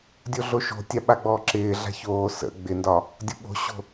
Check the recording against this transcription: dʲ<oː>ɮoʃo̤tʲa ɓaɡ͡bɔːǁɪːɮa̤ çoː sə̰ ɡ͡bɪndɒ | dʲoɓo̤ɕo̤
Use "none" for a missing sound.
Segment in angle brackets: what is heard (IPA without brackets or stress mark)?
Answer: o